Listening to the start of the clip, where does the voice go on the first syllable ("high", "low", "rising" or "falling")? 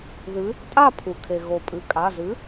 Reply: rising